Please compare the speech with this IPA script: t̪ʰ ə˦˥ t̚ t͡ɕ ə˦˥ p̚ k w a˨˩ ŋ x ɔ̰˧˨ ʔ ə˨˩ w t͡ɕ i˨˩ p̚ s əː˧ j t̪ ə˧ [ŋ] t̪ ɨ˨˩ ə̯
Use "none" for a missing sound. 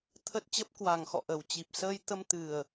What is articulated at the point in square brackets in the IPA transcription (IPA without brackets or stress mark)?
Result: m